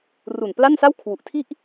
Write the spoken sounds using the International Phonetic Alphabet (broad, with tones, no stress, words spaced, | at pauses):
ru˨˩n pla˥˩nsa˥˩wkʰwu˨˩ʔ tʰi˥˩ʔ